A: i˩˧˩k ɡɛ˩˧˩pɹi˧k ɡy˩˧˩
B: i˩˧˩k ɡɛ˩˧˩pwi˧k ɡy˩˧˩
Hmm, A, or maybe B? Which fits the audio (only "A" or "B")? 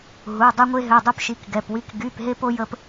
B